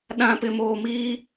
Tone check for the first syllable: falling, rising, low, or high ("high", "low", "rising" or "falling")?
low